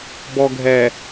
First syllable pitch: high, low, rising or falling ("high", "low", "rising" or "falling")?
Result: low